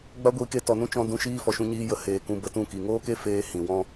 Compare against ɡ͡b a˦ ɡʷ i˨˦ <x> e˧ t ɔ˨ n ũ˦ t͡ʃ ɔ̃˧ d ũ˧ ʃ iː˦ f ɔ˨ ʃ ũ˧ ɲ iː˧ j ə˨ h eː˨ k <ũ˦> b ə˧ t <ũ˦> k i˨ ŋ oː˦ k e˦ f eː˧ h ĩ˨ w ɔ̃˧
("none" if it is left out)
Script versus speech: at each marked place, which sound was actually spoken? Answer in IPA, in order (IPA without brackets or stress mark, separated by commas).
k, ũ˧, ũ˦˨